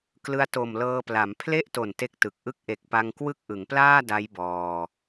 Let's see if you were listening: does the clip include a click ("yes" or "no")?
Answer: no